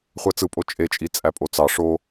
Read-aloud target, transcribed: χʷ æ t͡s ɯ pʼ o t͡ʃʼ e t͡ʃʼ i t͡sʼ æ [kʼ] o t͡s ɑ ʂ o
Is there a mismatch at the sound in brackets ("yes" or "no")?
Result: yes